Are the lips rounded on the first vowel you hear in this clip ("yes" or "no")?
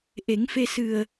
no